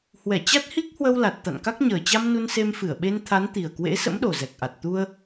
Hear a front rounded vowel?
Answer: no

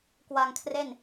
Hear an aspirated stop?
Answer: yes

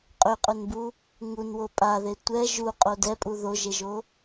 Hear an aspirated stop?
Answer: no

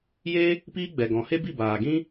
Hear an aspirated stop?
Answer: no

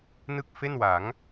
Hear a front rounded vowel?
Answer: no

